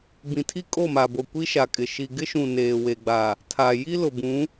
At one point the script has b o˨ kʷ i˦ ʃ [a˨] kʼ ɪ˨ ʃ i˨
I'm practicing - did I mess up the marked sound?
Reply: no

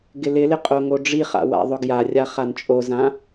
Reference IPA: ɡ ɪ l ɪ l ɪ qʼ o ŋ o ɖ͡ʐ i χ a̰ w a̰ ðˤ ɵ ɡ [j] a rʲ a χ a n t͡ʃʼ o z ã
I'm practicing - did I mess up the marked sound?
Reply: no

